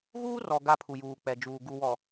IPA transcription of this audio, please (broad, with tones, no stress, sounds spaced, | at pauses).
ɣ uː˦ r ɔ˨ ɡ a˦ pʰ u˨ j uː˨ k͡p ɛ˨ d͡ʒ uː˨ ɡ u˨ w ɔ˨